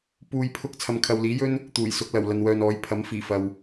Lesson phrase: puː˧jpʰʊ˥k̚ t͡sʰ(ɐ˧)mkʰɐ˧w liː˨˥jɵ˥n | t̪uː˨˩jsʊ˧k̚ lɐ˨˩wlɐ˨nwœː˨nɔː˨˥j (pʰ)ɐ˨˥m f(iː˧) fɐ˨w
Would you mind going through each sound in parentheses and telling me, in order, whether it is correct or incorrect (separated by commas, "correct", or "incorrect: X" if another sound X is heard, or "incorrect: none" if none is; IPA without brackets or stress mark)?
correct, correct, incorrect: iː˨˩